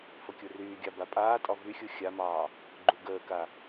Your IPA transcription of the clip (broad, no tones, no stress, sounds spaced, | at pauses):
f ə kʲ u r yː ɡʲ ɑ b a pʼ aː tʼ ɒ v y xʲ u xʲ a m ɑː | ɡ͡ǃ u ɡ əː k a